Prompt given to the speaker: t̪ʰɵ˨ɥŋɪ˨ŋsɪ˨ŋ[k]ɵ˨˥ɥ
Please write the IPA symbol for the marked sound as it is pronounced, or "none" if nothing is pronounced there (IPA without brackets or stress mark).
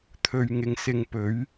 p